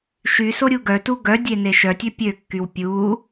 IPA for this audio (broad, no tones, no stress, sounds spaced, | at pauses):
ʃ y s o ɾʲ u ɡ œ t u ɡ œ dʲ e n e ʃ œ tʲ ø pʲ ø kː y w pʲ u